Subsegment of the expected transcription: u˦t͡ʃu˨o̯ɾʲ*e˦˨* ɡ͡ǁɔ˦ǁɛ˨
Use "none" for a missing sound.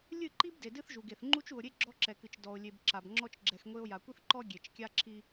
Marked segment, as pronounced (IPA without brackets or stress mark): e˦